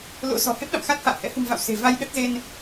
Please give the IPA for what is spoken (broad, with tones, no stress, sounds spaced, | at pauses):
l o̰˧˥ s ɔ̤˨˩ h e˦˥ p̚ ɗ a̰˧˨ m x a˦˥ t̚ h a̰ː˧˨ h ɛ̰˧˥ h ṳ˨˩ m v a̰˧˨ w s e̤˨˩ v a˧ j ɗ ə˦˥ t̚ z e˧ n